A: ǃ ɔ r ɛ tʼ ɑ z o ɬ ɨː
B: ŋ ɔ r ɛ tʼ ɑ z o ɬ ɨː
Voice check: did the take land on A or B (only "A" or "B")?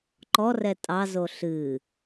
A